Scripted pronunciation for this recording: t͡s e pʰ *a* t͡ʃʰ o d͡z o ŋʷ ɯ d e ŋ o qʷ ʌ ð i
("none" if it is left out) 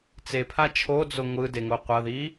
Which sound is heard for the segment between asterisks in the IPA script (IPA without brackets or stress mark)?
a